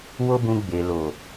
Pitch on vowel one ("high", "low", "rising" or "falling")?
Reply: high